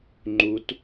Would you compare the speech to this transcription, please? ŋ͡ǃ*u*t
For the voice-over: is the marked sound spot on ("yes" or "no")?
yes